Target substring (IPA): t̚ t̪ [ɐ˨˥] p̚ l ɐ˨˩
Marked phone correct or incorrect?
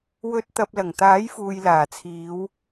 incorrect